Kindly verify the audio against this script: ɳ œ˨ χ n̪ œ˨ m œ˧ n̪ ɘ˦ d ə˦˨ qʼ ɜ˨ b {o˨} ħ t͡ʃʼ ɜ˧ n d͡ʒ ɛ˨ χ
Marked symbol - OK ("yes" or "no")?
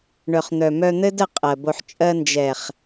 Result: yes